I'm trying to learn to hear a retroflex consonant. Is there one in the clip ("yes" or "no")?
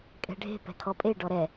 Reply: yes